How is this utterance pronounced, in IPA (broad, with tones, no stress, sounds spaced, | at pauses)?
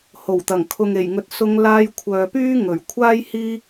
h o˨˩ w t̪ ɐ˨˩ ŋ kʰ ʊ˨ ŋ e˨˩ j ŋ ɵ˨˥ t̚ s ʊ˧ ŋ l aː˧ j kʷʰ œː˨ p yː˥ ŋ ɵ˨˩ ɥ kʷʰ aː˥ j h iː˥